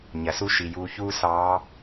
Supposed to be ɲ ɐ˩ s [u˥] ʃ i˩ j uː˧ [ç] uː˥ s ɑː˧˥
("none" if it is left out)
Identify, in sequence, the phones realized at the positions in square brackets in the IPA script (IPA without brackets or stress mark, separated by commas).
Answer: u˥, ç